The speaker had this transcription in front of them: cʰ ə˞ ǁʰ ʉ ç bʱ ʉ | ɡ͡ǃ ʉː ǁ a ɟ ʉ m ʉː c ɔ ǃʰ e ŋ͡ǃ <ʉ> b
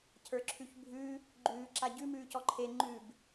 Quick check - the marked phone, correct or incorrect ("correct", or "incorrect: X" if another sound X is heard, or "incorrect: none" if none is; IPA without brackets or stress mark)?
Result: correct